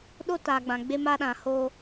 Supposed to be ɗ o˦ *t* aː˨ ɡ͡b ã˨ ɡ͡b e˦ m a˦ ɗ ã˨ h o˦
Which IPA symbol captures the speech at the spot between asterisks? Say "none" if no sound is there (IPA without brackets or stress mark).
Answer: t